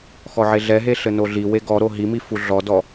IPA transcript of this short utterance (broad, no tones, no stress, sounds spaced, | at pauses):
x ɔ ʕ e ɮ ɛ ɦ e ɬ ɘ n o ɮ i w e ɡ ɔ ɾ o ɦ i m i f u ɮ ɔ d ɔ